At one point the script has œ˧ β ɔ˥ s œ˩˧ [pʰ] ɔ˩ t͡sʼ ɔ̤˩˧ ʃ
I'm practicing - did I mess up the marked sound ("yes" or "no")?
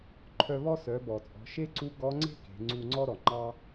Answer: yes